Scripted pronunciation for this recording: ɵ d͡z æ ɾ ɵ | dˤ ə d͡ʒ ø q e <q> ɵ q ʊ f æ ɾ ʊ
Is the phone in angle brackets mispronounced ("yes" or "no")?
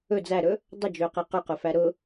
no